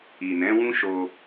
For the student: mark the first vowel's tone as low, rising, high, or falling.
low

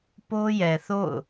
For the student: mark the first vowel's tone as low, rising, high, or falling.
high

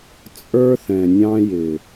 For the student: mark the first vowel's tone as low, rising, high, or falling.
high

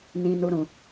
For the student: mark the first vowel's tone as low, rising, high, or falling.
low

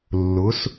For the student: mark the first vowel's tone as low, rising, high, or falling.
rising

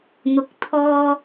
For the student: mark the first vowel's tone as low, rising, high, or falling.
low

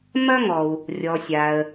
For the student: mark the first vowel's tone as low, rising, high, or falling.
high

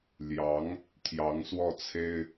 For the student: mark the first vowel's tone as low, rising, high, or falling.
rising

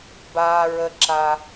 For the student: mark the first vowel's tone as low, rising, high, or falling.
high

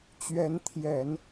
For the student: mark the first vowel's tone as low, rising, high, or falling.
rising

